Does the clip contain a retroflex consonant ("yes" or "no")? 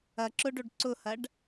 yes